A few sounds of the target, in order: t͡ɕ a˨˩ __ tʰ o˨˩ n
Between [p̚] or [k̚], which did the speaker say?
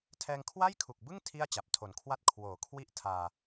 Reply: p̚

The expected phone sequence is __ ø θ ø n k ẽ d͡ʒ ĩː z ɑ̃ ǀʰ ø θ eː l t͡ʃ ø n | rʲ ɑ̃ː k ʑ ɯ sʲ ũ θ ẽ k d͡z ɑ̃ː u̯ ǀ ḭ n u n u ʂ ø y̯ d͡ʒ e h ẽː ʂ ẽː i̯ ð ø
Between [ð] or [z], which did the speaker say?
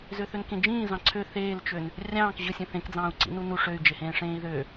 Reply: z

